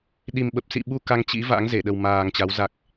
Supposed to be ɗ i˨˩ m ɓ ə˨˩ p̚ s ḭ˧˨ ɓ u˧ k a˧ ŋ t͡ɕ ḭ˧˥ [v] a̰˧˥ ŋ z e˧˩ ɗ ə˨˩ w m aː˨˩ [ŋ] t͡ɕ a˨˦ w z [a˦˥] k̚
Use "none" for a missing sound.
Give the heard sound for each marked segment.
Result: v, ŋ, a˨˩

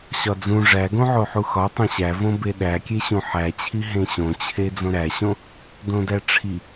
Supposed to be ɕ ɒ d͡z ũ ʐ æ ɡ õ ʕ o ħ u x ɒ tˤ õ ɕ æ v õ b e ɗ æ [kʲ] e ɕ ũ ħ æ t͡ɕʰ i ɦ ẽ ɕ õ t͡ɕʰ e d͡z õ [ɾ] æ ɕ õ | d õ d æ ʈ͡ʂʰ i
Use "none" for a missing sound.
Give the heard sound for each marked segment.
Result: kʲ, ɾ

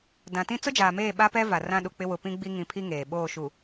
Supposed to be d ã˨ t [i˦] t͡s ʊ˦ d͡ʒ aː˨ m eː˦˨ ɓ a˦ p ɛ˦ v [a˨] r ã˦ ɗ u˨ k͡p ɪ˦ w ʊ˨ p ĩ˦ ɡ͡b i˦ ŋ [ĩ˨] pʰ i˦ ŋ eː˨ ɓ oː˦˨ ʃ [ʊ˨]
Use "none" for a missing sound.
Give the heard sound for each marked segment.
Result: ĩ˦, a˨, ĩ˨, u˨

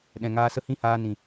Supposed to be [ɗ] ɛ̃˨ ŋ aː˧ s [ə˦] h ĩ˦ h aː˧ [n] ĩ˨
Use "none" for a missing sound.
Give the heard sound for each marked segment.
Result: ɗ, ə˦, n

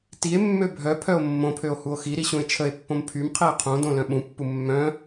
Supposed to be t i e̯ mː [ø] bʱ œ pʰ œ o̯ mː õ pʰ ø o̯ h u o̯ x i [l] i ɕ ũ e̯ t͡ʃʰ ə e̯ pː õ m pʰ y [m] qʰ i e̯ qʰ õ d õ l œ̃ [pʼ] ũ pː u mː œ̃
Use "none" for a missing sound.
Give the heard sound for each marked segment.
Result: ø, ɾ, m, ɓ

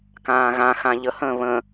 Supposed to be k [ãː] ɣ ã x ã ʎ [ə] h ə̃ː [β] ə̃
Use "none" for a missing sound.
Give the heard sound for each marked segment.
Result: ãː, ə, β

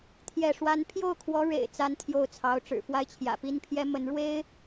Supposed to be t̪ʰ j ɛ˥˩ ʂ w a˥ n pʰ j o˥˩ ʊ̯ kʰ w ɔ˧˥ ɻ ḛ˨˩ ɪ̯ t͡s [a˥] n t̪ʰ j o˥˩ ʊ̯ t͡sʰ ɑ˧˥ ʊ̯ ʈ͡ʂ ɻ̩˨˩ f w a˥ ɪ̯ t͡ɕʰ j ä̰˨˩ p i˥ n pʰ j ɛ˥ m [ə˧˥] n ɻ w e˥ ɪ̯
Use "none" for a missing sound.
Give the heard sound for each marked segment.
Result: a˥, ə˧˥

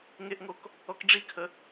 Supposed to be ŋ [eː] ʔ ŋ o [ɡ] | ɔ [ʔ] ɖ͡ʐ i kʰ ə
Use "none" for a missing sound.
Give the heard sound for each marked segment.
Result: e, k, k

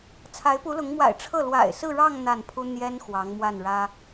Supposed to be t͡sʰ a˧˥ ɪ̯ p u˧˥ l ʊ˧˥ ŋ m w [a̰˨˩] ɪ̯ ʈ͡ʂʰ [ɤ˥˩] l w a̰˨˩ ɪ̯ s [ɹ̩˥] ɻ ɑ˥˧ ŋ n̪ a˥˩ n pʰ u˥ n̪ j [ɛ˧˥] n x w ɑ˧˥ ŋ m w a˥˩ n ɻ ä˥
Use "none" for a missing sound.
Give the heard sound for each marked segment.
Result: a̰˨˩, ɤ˥˩, ɹ̩˥˧, ɛ˥

